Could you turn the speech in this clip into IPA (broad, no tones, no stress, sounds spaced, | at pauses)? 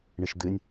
ɳ ɨ ʃ d̪ ɨ nʲ